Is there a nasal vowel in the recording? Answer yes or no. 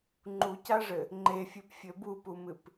no